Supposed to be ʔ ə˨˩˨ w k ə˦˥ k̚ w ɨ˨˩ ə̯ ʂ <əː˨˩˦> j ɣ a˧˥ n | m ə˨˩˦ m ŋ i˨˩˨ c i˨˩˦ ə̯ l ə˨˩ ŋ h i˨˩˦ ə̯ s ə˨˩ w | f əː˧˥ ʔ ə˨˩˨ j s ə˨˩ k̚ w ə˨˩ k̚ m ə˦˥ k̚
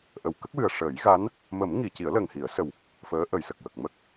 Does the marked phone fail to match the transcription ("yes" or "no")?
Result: no